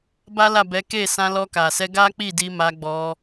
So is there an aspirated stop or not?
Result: no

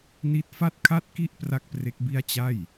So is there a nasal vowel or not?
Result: no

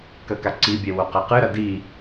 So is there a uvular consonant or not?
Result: yes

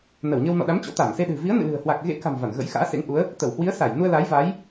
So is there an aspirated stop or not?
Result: no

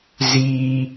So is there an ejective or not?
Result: no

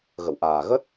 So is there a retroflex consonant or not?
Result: no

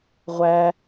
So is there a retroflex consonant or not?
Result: no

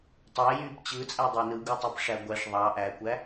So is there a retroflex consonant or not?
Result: yes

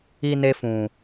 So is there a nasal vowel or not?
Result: yes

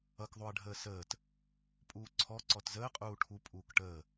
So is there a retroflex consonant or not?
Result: yes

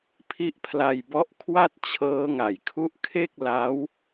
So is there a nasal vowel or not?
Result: no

